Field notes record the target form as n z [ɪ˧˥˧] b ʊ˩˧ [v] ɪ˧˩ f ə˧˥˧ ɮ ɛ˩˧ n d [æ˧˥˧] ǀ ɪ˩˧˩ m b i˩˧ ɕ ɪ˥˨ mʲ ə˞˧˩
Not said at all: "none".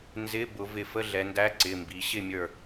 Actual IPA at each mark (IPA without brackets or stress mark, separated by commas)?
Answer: ɪ˧˥˧, v, æ˧˥˧